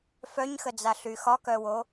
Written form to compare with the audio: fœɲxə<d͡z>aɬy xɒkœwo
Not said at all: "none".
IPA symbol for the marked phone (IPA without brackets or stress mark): d͡z